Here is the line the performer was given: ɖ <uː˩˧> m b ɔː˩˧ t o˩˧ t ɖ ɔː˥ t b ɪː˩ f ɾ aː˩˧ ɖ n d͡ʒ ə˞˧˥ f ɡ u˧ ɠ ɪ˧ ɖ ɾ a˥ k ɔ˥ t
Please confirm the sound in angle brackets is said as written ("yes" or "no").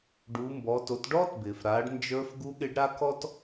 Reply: yes